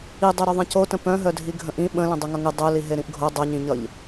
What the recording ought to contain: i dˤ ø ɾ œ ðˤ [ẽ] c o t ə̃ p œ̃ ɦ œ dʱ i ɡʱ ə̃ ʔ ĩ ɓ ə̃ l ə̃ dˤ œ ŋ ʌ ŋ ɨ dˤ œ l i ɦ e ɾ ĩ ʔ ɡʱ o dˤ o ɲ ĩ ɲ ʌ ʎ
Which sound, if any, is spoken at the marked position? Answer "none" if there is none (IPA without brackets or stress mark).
ẽ